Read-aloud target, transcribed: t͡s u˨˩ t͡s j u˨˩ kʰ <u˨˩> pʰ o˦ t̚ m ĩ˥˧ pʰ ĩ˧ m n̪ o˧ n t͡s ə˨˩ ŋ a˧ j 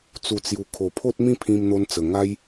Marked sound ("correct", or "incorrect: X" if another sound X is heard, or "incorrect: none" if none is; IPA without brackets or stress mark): incorrect: o˨˩